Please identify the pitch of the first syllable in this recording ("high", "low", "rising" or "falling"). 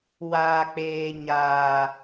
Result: high